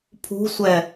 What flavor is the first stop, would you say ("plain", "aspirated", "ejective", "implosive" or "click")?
aspirated